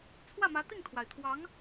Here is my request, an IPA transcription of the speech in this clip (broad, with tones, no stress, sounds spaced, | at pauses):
t͡sʰ w ä˥˩ m ä˧˥ t̪ i˥˩ ŋ t̪ʰ w a˩ ɪ̯ t̪ʰ w ɑ˧˥ ŋ